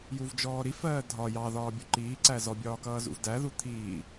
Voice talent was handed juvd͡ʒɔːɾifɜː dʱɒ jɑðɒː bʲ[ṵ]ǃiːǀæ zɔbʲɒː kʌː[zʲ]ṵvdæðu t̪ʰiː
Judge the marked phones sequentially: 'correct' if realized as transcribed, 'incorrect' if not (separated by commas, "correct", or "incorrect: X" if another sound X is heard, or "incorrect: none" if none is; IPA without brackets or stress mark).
incorrect: u, incorrect: z